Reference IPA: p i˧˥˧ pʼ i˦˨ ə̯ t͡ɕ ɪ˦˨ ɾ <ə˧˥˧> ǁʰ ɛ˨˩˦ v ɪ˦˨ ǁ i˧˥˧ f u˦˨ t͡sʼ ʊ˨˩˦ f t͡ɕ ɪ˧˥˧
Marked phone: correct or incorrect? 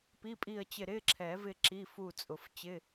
incorrect